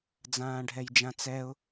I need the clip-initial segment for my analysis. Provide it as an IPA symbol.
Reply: d͡z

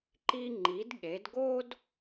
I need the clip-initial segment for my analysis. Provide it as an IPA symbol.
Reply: ǃ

